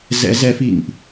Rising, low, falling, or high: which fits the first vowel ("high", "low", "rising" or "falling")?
rising